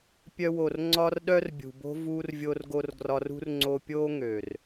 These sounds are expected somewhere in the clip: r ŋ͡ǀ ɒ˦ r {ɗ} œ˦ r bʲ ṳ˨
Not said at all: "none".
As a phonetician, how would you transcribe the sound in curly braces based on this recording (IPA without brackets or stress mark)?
ɗ